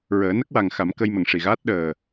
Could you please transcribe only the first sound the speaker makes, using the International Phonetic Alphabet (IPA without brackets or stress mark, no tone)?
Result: ɹ